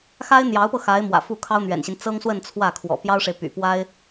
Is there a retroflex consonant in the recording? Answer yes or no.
yes